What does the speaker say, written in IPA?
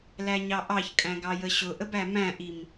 l æ ɲ ɑ ʔ ɑ ç kʼ æ̃ ɡ ɑ j ə ɕ ʊ ʔ ə b æ m æ̃ ʔ i m

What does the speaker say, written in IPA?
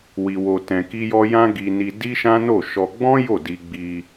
w i˧ w o˧ t ɛ̃˧ k i˦ j ɔ˦ j ã˦ ɡ i˧ n i˧ d i˦ ʃ ã˦ n o˦˨ ʃ ɔ˧ ɡ͡b ɔ̃˦ j o˦˨ d i˧ ɡ͡b i˧

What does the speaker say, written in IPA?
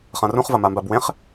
χ ã r ũ χ v ɐ m a m b a b w ẽ χ

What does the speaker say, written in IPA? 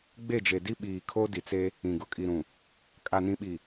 ɡ͡b e˦˨ d͡ʒ e˨ d i˦ ɓ iː˨ kʰ o˦ d i˨ t͡s e˦ | ĩ˨ ɡ ʊ˨ kʼ i˨ ɾ ũ˨ | kʼ a˨ n ĩ˨ ɓ i˨

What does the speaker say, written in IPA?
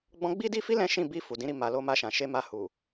ɡ͡b ɔ̃˧ ɡ͡b i˦ d i˦ f i˦ l ɛ̃˦ ʃ ĩ˦˨ b i˧ f u˨ d ĩ˨˦ ɾ i˧ m a˨ l o˧ m a˧ ʃ ã˨ ʃ e˧ m a˧ h u˨

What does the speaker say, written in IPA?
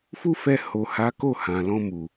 f u˦ f ɛ˧ h o˨ h a˨˦ k o˦˨ h ã˨ l ɔ̃˧ m u˨

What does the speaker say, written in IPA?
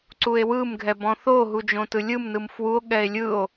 ǀ u e̯ w ɯ m ɡʱ ɛ b ɔ̃ θ o ɦ u d͡ʒ õ t ɯ lʲ ɯ m n ɯ m f w u o̯ ɠ ɛ e̯ lʲ ɯ o̯

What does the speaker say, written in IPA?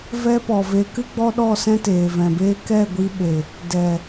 v ɛ˦ p ɔ˨ v e˧ k ɨ˦ ɡ͡b ɔ˦ ɗ ɔ˦˨ s ɛ̃˦ t eː˨ v ɛ̃˨ b eː˦ k ɛ˦˨ ɡʷ i˧ ɓ e˨ | d ɛ˨

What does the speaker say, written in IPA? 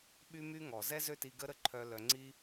ɓ y˦ m y˦ ŋ ɔ˨ z ɛ˦ z ø˦ t i˧ ɡ ə˦ ɾ ə˦ ǃʰ œ˧ l œ˧ ŋ͡ǀ i˦

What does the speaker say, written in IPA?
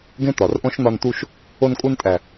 ɡ ẽ˦ t̪ ɒ˨ r ʔ õ˦ ʃ n̪ ɒ˧ n t̪ u˧ ʃ | o˧ n kʼ u˧ n tʼ æ˨

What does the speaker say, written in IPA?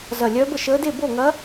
z ɐ˧˩ lʲ œː˧˥ b ə˧˩ ʃ əː˧˥ d e˥˨ b o˥˨ ŋ ɐ˧˥

